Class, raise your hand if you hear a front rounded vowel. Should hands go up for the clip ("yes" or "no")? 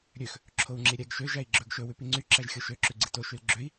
yes